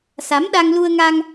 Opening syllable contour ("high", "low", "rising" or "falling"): rising